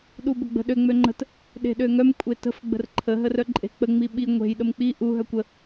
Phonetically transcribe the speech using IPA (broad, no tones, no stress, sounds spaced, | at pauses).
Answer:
ɗ u b ə ɡ͡b ə̤ ɗ ø ŋ͡m ø ŋ͡ǃ ə̤ t | ɗ e̤ ɗ ø ŋ œ m kʷʼ e t ə̤ f ɡ͡b ə̤ r ǃʰ ə ɦ ə r œ ǃʼ e̤ k͡p ə ŋ͡m i ɓ i ŋʷ e̤ j ɗ ə m k͡p i ʔ u ɦ œ kʷ ə